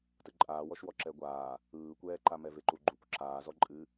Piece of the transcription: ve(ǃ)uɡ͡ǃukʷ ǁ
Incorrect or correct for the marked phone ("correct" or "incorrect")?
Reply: correct